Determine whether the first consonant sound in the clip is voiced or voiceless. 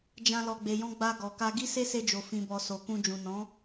voiced